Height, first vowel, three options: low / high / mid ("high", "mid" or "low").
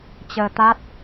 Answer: mid